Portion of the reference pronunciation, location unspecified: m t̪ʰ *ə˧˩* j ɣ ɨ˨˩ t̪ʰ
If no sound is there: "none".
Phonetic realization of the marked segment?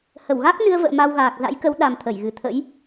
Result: ə˧˩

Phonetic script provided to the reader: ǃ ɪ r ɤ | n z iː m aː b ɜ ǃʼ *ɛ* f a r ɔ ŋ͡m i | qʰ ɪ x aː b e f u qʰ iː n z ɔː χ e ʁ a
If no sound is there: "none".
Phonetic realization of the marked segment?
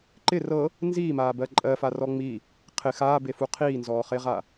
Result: ɜ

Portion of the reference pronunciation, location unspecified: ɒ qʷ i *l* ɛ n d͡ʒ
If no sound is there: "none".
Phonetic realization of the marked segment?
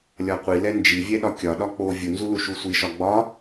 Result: l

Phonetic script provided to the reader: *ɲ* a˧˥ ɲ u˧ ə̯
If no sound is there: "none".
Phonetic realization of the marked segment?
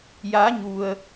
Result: j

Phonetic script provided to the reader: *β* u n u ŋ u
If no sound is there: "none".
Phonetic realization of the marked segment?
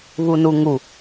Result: β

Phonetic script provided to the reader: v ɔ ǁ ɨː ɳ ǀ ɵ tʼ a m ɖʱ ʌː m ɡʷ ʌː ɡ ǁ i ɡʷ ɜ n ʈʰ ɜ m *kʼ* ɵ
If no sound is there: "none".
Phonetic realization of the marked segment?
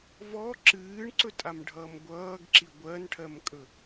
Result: kʼ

